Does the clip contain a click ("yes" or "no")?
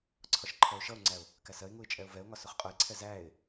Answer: yes